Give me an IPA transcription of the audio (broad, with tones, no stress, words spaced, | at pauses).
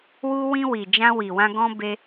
wu˧wĩ˧ wi˨d͡ʒã˧wi˨wã˧ ɡɔ̃˧ be˧